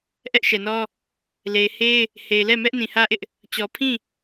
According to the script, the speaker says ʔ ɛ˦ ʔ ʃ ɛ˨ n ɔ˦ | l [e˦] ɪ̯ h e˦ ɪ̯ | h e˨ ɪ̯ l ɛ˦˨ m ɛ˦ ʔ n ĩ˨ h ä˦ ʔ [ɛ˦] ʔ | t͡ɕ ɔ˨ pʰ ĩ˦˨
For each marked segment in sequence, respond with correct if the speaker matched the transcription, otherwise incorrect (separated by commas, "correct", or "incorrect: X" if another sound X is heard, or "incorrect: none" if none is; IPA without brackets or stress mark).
incorrect: e˨, incorrect: ɪ˦